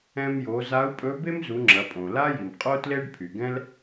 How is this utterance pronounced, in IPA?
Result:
ɛ̃˧mjo˩˧ za˧˥u̯pʼɵ˧˥ be˥mzu˩˧ ŋ͡ǁɐ˩˧pʼõ˩ la˥ji˩m qʼo˥tle˥ɖpʰy˩ɡɛ̃˥l

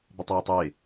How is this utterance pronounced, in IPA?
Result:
bɪtˤɛːtˤɪː

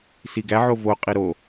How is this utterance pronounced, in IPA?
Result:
siɡæ ʕovo qʼiɾo

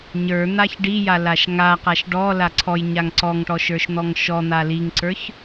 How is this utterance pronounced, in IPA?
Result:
ɲə˞ n̪açɖija laʃŋaqaʃ ɖɔ laǀʰɔjɲaŋ ǀɔŋʈɔ ʃə˞ʃn̪ɔŋʃɔn̪a liŋǀə˞ç

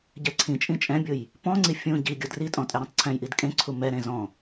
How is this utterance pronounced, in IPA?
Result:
ɟɛǀʰĩt͡ʃʼĩ t͡ʃʼɛ̃bʲʊj | pɔ̃ŋ͡ǀi fʲũ ɟiɡʲʊ dritʼɔ̃ tʼɛɾẽtˤǀʰɛ̃jʔid kʼẽǀʰu mɛɾẽ zɔ̃

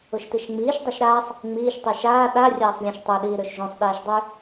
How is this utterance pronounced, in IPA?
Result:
ʊʃtiʃŋ͡miːʃ dˤoʃɾaːsˤ | ŋ͡miːʃ tˤyʃaː ɗa rʲaːsˤlʲɛ̃ʃtˤɵ ɗiːɾøʃʒõsˤ ɗɛːʃdˤy

